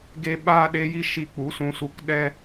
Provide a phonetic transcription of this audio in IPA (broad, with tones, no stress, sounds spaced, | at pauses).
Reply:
ɡ e˧ ɓ aː˧ ɗ e˧ j i˧ ʃ i˧ k͡p u˨˦ s ũ˧ s u˧ k ɗ ɛ˦